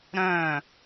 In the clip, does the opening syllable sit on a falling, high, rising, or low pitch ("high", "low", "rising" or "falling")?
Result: falling